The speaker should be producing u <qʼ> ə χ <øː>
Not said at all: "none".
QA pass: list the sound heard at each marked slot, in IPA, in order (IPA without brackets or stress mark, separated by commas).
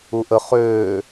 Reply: ʔ, øː